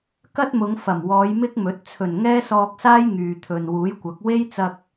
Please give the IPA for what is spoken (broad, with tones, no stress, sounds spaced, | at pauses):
k ɐ˥ t̚ m ʊ˨˧ ŋ f ɐ˨˩ m w ɔː˨˧ j m ɪ˥ k̚ m ɵ˨˥ t̚ t͡sʰ ɵ˨˩ n ŋ ɛː˥ s ɔː˧ k̚ s aː˥ j ŋ yː˨ t̪ʰ ɵ˨ n w uː˨˥ j kʷ ɐ˨˥ k̚ w e˥ j t͡s ɐ˧ k̚